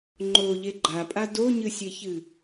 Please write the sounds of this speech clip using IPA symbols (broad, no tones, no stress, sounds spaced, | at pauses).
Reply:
ŋ͡ǃ o ʎ e ɡ͡ǃ a pʼ a d o ɲ ɨ sʲ e ç ɨ